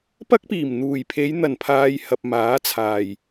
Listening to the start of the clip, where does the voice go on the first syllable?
high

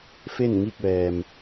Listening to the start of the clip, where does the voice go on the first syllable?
falling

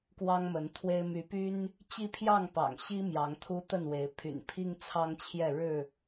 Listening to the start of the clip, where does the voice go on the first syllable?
high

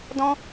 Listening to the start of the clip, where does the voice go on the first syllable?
high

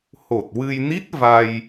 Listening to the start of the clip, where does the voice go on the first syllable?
low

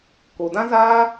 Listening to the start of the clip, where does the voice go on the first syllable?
low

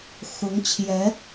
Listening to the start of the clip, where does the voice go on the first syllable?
rising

